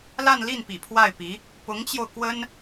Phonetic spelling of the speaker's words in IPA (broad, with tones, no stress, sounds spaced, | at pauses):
l a˥˧ n l i˥˩ n p ḭ˨˩ pʰ w a˥˩ ɪ̯ p i˧˥ | p ʊ˧˥ ŋ t͡ɕ j o˧ ʊ̯ k w ə˥ n